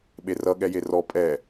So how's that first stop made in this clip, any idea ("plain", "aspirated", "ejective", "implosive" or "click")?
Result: implosive